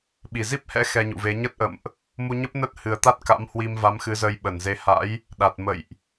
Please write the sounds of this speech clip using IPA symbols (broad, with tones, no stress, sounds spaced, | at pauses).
ɓ i˧˩ z i˦˥ p̚ h ɛ̰˧˥ x ɛ˧ ɲ ṵ˧˨ v e˨˦ ɲ ə˦˥ t̚ ʔ ə̰˧˨ m ʔ | m u˧ ɲ ə˦˥ p̚ n ə˦˥ t̚ h ɨ˨˩ ə̯ t̪ a˦˥ t̚ k a̰˧˥ m h w i˧ m v a˨˦ m x ɨ˨˦ z əː˧ j ɓ ə˧˩ n z e˨˦ h a̰˧˥ j | ɗ a˨˩ t̚ m ə̰˧˨ j ʔ